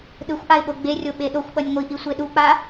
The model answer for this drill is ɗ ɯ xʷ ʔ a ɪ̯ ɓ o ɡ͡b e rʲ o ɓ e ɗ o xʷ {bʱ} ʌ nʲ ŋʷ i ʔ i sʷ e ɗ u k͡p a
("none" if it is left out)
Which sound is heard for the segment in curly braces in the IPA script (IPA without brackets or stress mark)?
ɓ